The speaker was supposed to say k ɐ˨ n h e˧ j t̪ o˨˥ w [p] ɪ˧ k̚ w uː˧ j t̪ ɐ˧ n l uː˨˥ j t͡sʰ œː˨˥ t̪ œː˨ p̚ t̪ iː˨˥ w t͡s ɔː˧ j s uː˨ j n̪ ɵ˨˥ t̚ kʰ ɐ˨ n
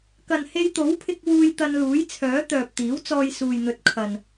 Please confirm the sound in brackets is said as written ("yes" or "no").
no